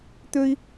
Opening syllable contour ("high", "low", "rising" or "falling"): high